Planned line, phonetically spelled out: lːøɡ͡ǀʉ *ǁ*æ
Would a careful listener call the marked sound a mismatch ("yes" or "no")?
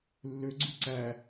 yes